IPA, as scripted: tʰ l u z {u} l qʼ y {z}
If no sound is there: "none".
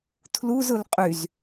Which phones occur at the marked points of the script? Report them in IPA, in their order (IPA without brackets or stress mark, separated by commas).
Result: ʊ, z